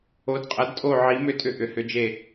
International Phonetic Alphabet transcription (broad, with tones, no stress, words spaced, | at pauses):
o˨˥dqʼɐ˨˥dtʼo˦˨ ʕi˨˥ mʏ˦˨tʼʏ˦˨ ʔʏ˨˥hʏ˨˥d͡ʒe˦˨